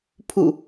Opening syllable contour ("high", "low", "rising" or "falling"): falling